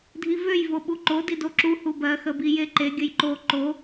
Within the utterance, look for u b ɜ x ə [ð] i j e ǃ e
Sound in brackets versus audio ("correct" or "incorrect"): incorrect